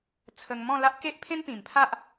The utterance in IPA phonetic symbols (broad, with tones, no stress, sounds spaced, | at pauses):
t͡sʰ ə˧ ŋ m ɔ̃˥˧ l a˦ ʔ k e˦ ʔ pʰ ẽ˦ n p ĩ˨˩ m pʰ a˦ ʔ